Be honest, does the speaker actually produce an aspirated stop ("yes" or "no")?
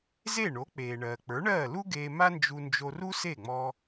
no